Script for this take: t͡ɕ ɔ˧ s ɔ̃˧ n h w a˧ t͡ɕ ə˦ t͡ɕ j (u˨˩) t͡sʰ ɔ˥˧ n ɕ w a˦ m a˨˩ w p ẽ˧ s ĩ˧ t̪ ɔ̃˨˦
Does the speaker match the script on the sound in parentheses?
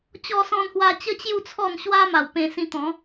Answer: no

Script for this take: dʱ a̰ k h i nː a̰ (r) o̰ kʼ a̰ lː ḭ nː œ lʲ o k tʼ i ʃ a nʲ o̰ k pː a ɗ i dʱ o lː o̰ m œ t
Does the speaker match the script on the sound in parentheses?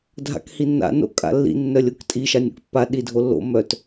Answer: no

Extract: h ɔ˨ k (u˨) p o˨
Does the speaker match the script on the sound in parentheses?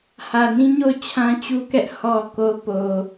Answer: no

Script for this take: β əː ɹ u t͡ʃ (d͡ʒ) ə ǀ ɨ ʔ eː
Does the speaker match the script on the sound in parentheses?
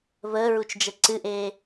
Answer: yes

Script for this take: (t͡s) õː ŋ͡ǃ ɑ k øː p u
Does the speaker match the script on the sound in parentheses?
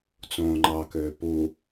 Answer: yes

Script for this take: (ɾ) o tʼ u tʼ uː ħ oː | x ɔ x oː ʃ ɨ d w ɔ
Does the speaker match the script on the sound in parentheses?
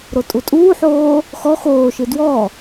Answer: yes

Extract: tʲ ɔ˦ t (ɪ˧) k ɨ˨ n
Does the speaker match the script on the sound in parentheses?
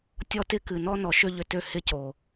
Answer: no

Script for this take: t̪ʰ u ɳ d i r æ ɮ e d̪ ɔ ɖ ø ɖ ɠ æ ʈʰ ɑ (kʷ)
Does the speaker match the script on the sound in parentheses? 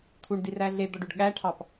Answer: no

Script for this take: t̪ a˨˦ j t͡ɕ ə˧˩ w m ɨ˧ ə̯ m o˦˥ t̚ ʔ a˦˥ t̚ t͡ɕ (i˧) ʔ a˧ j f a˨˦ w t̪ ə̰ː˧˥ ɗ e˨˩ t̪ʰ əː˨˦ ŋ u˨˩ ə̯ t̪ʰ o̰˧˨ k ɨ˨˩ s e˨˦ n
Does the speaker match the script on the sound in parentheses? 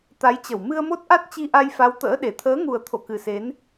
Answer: yes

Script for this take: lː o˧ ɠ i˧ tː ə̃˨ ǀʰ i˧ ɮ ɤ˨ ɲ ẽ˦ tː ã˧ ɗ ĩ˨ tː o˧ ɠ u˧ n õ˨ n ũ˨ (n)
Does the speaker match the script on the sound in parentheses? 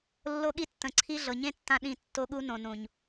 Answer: no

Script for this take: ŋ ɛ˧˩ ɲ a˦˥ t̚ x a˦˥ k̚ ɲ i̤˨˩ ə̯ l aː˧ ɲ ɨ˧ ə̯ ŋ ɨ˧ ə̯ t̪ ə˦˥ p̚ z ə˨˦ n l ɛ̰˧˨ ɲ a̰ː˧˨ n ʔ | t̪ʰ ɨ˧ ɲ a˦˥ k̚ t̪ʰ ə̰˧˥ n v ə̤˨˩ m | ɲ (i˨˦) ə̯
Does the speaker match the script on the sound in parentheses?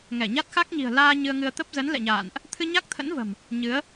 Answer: no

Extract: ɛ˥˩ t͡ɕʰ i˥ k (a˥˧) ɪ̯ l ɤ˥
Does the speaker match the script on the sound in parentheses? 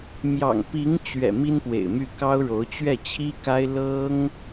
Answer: no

